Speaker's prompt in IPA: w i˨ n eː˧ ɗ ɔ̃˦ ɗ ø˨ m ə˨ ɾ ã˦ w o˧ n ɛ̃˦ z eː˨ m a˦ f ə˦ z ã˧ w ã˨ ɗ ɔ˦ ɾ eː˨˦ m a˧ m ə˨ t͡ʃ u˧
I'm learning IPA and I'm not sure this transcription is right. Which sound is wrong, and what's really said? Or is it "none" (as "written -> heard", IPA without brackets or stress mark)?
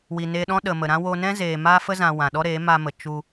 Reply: ø˨ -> ə˨